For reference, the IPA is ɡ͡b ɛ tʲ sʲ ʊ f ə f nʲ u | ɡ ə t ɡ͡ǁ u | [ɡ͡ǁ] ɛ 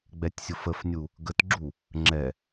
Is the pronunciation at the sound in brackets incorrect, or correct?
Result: incorrect